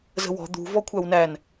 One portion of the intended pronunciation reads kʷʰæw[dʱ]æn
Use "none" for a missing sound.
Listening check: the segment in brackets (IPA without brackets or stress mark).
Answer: n